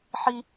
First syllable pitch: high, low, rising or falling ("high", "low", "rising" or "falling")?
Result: high